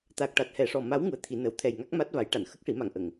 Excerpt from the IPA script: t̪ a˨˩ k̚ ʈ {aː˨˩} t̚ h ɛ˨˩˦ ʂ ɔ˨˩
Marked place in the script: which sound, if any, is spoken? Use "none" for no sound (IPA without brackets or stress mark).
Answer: a˨˩